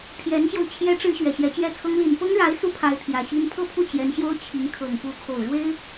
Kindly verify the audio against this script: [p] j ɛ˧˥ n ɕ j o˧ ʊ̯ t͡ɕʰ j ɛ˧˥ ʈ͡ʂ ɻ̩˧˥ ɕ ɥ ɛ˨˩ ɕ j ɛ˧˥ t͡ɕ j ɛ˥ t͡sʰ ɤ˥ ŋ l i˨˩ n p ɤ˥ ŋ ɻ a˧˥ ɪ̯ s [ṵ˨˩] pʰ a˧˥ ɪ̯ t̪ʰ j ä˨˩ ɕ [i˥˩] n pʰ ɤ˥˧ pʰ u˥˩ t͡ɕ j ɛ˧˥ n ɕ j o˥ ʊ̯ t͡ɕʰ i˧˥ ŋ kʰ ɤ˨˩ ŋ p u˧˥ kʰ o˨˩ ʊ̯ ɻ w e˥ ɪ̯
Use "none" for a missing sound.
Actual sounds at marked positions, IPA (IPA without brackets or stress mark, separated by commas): pʰ, u˥˩, i˥